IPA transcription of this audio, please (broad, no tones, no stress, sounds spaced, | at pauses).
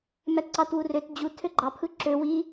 m æ t ǀ ɑ t w u r ø t d͡ʑ u tʰ ø ɡ͡ǃ ɑ pʰ ɯ ǁ ø w i